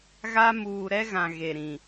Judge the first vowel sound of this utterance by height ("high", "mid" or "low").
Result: low